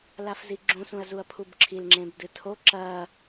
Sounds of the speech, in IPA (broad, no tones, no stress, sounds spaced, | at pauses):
l a f z i ɡ͡ǁ ũ s ũ ɐ̯ z u ɐ̯ pʰ u b ǁʰ i l ŋ͡ǁ ẽ b d ɨ tʰ o ǁ ɐ